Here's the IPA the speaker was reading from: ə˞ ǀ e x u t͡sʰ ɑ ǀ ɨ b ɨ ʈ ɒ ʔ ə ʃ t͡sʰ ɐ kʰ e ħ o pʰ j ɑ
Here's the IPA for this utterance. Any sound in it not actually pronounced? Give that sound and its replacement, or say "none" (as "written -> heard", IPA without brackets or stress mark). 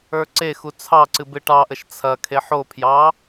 ɒ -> ɑ